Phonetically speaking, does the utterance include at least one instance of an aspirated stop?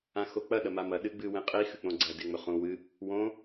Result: no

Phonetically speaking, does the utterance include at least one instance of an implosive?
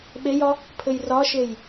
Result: yes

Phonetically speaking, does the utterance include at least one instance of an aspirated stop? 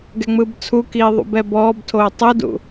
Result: yes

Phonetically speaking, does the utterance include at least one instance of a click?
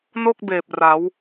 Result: no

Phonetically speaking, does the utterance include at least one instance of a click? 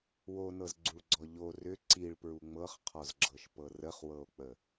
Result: yes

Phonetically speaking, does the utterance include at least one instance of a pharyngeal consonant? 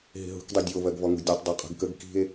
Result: no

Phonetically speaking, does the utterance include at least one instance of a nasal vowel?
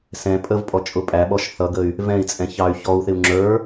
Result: yes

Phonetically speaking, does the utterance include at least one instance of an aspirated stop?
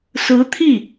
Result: yes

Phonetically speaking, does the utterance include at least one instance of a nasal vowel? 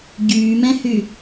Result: yes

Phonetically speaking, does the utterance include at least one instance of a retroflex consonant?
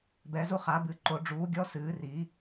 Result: yes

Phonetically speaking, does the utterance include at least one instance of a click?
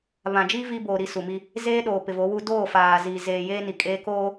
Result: no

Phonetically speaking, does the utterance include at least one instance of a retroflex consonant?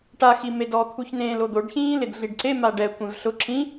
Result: yes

